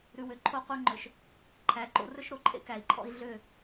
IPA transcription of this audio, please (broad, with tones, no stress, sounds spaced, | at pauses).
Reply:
ɾ ʉ˨ w ø˨ ǃʰ o˦ qʷ ɛ˦ ŋ͡ǃ ɵ˨ ʃ | ǃʰ æ˨˦ ǃ o̰˦ r ɵ˦ ʃ ɾ o˨ ǃʼ ḛ˦ k æ˨ i̯ ǃʰ ɔ̰˦ i̯ ɮ ø˦˨